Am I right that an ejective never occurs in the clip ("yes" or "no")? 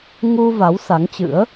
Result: yes